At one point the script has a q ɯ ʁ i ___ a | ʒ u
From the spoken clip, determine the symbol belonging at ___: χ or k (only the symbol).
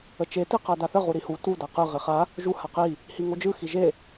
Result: χ